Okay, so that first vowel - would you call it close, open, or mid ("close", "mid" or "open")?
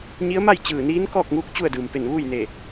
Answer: close